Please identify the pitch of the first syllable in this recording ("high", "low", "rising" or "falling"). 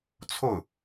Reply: falling